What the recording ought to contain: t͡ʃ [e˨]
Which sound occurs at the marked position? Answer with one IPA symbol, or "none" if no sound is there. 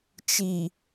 i˨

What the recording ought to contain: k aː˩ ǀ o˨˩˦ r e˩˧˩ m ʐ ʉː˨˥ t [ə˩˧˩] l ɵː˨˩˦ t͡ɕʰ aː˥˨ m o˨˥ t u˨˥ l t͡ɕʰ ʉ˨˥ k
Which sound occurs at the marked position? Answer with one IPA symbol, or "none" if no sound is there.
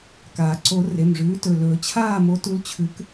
ɵ˩˧˩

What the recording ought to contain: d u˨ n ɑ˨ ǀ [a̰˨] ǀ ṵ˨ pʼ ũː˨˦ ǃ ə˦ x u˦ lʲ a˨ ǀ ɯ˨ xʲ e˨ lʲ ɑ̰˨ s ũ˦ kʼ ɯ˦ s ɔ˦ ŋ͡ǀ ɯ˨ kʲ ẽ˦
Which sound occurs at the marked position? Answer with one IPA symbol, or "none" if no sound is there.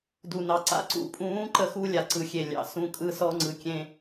a̰˨˦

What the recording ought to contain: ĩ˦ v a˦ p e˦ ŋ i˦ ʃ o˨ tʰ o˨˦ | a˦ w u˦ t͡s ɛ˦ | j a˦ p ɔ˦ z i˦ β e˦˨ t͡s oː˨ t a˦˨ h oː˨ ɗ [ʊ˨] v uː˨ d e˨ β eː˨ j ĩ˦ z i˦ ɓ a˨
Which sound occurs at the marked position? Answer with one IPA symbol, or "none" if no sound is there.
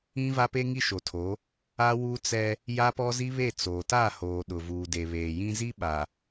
ʊ˨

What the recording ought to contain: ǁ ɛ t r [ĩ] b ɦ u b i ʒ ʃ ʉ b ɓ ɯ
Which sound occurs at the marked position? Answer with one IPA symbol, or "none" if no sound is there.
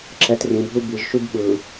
ĩ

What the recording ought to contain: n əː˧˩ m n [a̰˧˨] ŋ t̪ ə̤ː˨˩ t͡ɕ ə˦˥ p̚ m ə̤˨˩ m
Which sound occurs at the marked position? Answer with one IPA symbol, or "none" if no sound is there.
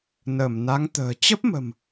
a˨˦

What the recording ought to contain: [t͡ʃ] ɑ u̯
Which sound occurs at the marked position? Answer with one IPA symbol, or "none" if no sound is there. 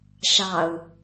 ʃ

